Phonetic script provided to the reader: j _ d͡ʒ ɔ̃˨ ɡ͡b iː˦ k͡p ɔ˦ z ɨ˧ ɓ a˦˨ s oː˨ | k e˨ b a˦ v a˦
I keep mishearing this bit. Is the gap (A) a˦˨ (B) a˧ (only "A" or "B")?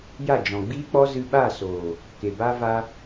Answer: A